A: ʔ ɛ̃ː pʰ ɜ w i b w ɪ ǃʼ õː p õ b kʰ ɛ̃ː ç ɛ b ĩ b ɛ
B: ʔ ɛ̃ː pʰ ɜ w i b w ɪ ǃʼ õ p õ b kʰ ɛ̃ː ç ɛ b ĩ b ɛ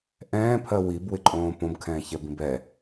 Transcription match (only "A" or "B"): A